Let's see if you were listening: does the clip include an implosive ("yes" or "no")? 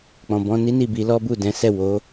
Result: no